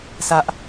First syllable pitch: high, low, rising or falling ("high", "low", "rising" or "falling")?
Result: high